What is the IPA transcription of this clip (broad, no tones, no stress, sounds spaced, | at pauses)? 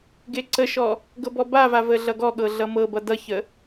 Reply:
ɡ e ǀ ə ʃ ɔ | ɡ ɤ b ɔ b a v a v ə ɮ ʌ ɡ ɔ ɠ ɤ ɮ ʌ m ɤ b ʌ d ʌ ç ə